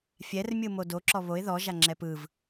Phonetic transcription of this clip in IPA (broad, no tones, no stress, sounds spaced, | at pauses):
fʲ ɛ r mʲ ɯ m o d o ǁ ɔ β o ɪ̯ ð ɔ ʒ a ŋ͡ǁ ɛ p ɯ v